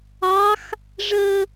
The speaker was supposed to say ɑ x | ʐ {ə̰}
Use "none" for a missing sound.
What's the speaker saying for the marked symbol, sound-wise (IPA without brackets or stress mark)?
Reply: ə